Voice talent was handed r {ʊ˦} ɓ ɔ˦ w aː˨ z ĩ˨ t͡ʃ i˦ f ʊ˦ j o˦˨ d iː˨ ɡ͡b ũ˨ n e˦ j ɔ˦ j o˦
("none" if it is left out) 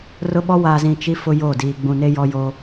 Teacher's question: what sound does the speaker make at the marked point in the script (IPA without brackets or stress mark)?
ʊ˦